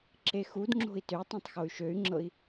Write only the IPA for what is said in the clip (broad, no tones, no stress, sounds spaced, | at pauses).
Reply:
ǁ e x u d ŋ͡ǁ o̤ i̯ t ø tˤ ũ tˤ x o y̯ ʃ ø y̯ ŋ͡ǁ ɤ i̯